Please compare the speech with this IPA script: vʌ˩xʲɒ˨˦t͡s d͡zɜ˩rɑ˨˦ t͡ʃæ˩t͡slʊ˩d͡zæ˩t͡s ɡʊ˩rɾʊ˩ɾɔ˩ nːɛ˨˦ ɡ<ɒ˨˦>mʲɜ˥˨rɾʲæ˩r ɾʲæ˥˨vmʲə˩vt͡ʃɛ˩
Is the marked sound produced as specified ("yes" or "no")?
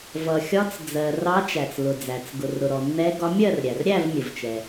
yes